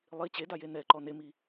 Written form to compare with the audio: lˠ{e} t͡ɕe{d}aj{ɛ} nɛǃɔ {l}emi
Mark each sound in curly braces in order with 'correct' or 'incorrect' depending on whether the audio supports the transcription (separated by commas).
incorrect, correct, incorrect, incorrect